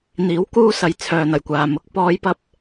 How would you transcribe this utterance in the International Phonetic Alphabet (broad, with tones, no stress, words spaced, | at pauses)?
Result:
n̪iː˨˥w kuː˧ sɐ˨j t͡sʰœː˨n̪ɐ˨˩jkʷaː˨mʊ˨˥k̚ pɔː˨˧jpɐ˧p̚